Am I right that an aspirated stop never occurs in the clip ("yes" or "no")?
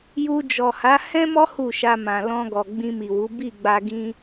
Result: yes